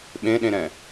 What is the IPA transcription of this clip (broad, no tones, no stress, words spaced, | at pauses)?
ɓẽɗẽɾɛ̃